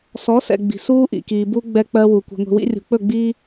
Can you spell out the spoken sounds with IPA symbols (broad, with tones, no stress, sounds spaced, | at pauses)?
s ɔ˨˦ s ɛ̰˨ ɡ͡b i̤˨ s uː˦ ʔ ḭ˨ k iː˨ b u˦ ɡ͡b ɛ˦ k͡p ɜ˦ w u˨ kʷ i̤˨ ŋʷ i̤˨ w ḭ˦ rʲ ṳ˨ k͡p ɵ˦˨ ɡ͡b iː˦